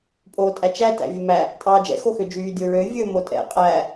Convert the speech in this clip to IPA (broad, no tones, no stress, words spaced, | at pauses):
pʼoːtʼæt͡ʃæ tæ̰vʲɵmæ | tʼɑːd͡ʒɛ̰ xoxød͡ʒyː dʲoɹø vʲɵːmotʼɛ̰ qʼæ